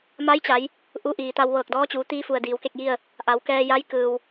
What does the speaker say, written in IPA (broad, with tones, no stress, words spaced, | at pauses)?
ma˧˥jt͡ɕa˩˧j | ʔu˧ʔiː˩t̪a˧w ʋɤː˧˩k̚dɔː˧˥t͡ɕuː˩˧ t̪iː˧fu˩ə̯ diː˩˧wke˥˨k̚ji˥˨ə̯ | ʔa˩˧wkɛː˧ja˧˥j kɯː˩w